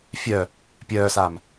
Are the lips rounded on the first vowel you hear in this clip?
yes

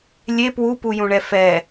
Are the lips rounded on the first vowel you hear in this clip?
no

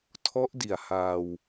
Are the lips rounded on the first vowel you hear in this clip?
yes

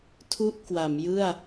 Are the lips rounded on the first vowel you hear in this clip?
yes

